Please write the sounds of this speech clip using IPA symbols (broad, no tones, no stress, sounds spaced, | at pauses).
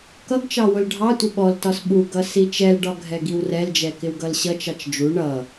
k ʌ ɡ t͡ʃ ɑ w ʊ l ɖʱ ɑ tʷ ɪ ɓ ɔ l t ɒ s ɓ u ɡ ʌ s i t͡ʃ ɛ l ɖ ɒ ɡʱ ɛ ɡ i w r ɛ l d͡ʒ ɛ k ɪ w ɡ ʌ l ɕ ʌ t͡ʃ ɑ t͡ʃ d͡ʒ u ɳ ʌ